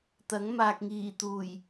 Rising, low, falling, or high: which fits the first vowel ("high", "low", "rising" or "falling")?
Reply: rising